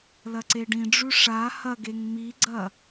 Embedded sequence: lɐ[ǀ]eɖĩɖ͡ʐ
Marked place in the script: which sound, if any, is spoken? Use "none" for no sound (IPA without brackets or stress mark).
ǀ